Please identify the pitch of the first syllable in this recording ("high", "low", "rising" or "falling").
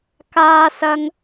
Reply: high